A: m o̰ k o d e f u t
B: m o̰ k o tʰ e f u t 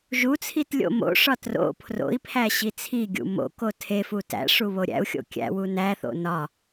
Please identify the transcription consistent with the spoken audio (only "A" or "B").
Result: B